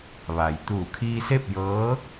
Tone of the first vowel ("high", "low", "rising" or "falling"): low